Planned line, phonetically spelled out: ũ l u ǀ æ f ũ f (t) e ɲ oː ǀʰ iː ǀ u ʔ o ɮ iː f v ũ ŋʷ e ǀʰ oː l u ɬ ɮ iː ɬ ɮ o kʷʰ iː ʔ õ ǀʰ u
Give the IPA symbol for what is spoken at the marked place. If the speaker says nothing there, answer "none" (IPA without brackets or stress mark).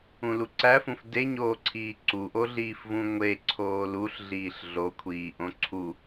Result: d